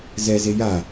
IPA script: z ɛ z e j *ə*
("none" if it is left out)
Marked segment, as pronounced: a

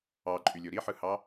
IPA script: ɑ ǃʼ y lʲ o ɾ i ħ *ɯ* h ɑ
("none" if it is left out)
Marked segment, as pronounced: ɯ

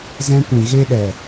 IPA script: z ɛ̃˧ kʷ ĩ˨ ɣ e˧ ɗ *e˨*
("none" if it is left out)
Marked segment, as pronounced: ɛ˨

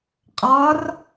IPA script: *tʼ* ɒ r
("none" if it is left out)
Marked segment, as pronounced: qʼ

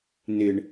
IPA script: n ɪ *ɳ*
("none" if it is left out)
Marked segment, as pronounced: ɳ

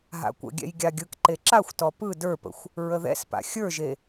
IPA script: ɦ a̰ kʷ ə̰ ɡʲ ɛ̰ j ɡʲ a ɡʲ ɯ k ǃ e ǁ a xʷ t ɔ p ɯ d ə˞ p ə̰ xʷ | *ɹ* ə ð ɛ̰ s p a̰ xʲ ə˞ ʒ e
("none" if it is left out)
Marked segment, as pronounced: ɹ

